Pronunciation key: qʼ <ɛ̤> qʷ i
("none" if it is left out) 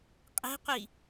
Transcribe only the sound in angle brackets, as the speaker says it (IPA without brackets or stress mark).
ɛ̤